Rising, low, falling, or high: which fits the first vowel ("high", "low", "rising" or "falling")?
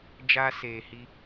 high